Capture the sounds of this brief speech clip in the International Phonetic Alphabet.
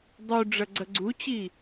dˤu ɖ͡ʐɐɡ͡ǀɐɡ͡ǀut͡ɕi

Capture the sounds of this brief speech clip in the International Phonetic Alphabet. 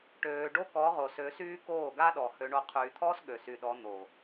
ʈøː˨ɖo˦ kɔ˨˦ʁo˨sø˨˦syː˦ koː˦˨ɡa˦ɗɔ˨ hø˨ɳo˨ qʰyː˨t̪ʰɔː˦s ɠø˨sy˨ɗɔ˨˦ n̪o˨

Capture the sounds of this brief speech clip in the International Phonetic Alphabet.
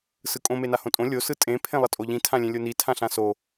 sɯkʼõ menahõtʼõ lʲo sɯtʼẽ pʰẽlˠʌtʼoʎĩ tʰãlʲẽlʲoni tʰãɬãso

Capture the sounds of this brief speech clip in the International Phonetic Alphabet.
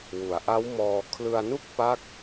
wu˩˦a̯ʔa˦˥wmɔː˧ kʰlɯ˧a̯nu˥˩k̚pa˦˥k̚

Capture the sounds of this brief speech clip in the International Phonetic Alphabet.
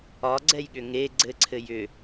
ɒɡ͡ǀɛjɠʏ ŋe ɡ͡ǀɘǀʰɘ jʏ

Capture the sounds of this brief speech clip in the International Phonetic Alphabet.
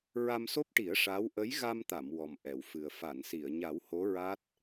ɹa˧mso˦˥p̚ʈi˨˩˦ə̯ ʂa˧˥w ʔə˧˥jɣa˧mt̪a˨˩˨m wɔ˨˩mʔɛ˨˩˨wfɨ˨˩ə̯ fa˨˩˨nsi˨˩˨ə̯ɲa˨˩˦w ho˧˥ɹa˦˥t̚

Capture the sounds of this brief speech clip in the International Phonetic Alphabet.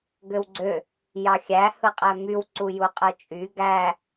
ɡøwɡ͡ǀø | jɑxʲæ hɯqʼæmyw ǀujuqʼɯt͡ʃʼy ɡæ

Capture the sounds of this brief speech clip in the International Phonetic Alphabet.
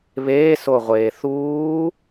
βeːsoʁʷeː θuː

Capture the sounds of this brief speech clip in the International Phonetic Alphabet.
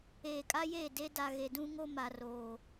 eː˨kʼa˦jeː˦˨ de˦ da˨ɣe˨dũ˦ŋo˦ ma˨roː˨

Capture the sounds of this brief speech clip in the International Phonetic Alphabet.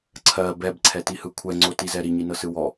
ǀʰɜ bɛbǀʰɛtihɯ kʷʰɛŋ͡ǀotizɛ ɾiɲinɤsɯ wɔ

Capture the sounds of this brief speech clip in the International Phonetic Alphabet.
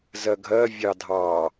zɜɡʱɜ vʲɑdʱɑ

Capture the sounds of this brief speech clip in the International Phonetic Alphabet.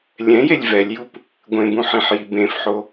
lʲɛ̃jelʲ vɛlʲjup | ɡʷẽbũħĩħji bẽfħo

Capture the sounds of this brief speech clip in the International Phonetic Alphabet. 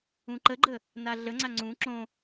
ũǃəɡ͡ǃə | naɮəŋ͡ǀa ŋ͡ǀũ ǁõ

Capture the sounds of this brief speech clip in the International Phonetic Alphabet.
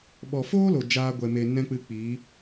ɓɔ˨foː˦lo˨ d͡ʒaː˧ɡʷɛ˨me˨ nɛ̃˦k͡pɨ˧k͡piː˨˦

